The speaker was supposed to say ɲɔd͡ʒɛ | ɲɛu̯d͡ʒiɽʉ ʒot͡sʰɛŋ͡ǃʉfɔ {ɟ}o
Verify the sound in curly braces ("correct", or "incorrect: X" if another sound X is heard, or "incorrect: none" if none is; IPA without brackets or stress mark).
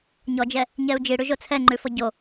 correct